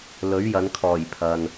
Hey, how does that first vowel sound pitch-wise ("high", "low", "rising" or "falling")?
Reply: rising